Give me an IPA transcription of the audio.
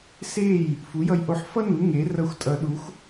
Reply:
s e˥˩ j | f u˩˥ j ʌ˧ j ʔ o˧ ħ f ʌ˥ n u˩˥ ŋ e˩˥ r ʌ˧ xʷ tʼ ʌ˨˩˦ ɗ u˩˥ xʷ

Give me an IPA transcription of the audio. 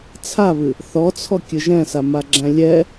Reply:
t͡sʰ a β ɨ | θ ɔ t͡sʰ ɔ kʲ ɨ ʒ ɛ̃ s a m a ɡ͡ǁ æ̃ lʲ ɛ

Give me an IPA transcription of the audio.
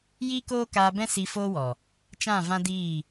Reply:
j iː˦ k oː˦ k aː˧ b ɛ̃˦ s i˧ f oː˦ w ɔ˨ | t͡ʃ ã˦˨ v ã˦ d iː˦˨

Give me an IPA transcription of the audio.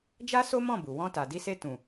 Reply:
d͡ʒ a˦ s o˦ m ɔ̃˦˨ b u˨ w ɔ̃˧ t a˨ d i˧ s e˧ t ũ˨

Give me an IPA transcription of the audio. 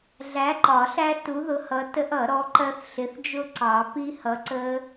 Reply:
ɮ æ˨˥ ǃ ɒ˨˩˦ ɬ æ˦˥ t u˨˥ ð ʊ˨˥ h ʌ˨˥ t ə˦˥ ʔ ʌ˨˩˦ ɾ ɔ˨˥ ǃ ɜ˦˥ θ ɬ ɪ˨˥ θ d͡ʒ ʊ˦˥ ǀ ɑ˨˩˦ p i˦˥ h ʌ˨˥ ǀ ə˦˥

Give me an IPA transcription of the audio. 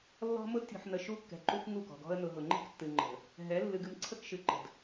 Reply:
lː ɔ̤˦ m ʊ˦ d tʲ ɔ̤˨ ħ n ə˨ ʃ u˦ kː ɛ̤˨ ǃ u˦ k ŋ u˦˨ k ɔ̤˨ ɡ ɔ̤˦ ə̯ n ʊ˨ ɦ ʊ˨ ŋ͡ǃ e̤˦ k tː ɨ˨ ŋ͡ǃ ə̤˨ | ɦ ɛ˨˦ lː ɨ˨ ɡ ɨ˨ m ǀʰ ə˦ k ʃ ɨ˨ ǃ ə̤˨ d

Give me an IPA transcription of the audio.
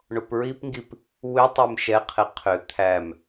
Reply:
ɳ o p ɹ i p ŋ ɡ i p | w ʏ tˤ e m ʃ ɛ qʰ ɪ qʰ ʏ t̪ʰ æ m

